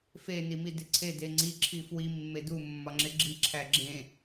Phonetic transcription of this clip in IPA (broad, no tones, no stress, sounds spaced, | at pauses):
f e n i m i d e ǀʰ e d e ŋ͡ǀ i ǁʰ i f w i mː e d u mː ɒ ŋ͡ǁ e ɡ͡ǁ i ǁʰ æ ɡ͡ǁ ẽ